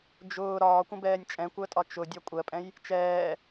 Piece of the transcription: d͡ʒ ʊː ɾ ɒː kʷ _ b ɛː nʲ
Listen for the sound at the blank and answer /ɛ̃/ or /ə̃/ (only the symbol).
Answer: ə̃